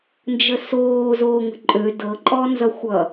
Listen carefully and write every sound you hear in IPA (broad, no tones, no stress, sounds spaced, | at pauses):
n d͡ʒ ə s oː z oː ŋ ə̤ ǃʼ ø d ɤ ǃʼ ɔ n z ʌ xʷ ʌ